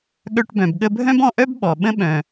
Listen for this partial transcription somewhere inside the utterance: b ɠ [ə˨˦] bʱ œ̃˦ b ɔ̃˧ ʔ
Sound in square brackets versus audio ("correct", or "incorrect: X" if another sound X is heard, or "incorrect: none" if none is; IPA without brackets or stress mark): incorrect: ə˧